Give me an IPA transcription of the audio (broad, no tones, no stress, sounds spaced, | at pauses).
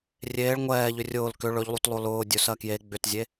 rʲ eː ɭ ŋʷ ɛː ʎ ʏ rʲ ʊː l k ʏ ɭ ɵ ʎ lˠ u t lˠ o l ʊː dʲ ɵ s ɜ k j e ɡ͡b ʏ t zʲ e